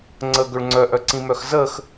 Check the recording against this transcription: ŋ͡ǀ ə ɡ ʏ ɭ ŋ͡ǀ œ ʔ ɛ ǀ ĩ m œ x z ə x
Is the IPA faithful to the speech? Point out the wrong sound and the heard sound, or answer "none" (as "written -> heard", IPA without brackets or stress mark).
ɛ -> œ